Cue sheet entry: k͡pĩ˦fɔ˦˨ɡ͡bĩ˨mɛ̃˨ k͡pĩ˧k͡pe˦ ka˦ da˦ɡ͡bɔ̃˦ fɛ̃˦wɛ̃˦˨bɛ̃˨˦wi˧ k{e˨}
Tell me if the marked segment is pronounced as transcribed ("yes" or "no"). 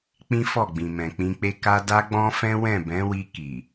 no